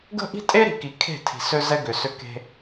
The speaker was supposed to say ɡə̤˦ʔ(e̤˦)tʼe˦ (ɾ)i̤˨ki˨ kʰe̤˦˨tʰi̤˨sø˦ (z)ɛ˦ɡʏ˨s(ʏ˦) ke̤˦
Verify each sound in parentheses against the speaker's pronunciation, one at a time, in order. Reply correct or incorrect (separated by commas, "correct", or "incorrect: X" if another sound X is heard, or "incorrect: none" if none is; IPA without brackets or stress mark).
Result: incorrect: i̤˦, correct, correct, correct